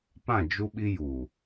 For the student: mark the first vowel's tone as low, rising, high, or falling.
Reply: falling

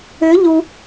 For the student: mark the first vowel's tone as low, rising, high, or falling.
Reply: rising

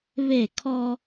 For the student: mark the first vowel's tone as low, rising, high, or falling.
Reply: falling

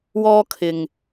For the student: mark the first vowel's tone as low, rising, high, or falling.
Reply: high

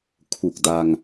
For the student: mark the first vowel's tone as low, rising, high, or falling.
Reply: low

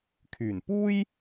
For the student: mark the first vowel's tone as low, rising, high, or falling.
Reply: low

